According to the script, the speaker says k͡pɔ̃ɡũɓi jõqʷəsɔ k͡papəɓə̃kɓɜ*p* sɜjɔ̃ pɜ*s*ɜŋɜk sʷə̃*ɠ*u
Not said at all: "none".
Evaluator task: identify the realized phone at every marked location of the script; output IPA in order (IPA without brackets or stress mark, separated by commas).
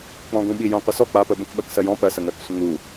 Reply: k, s, ŋ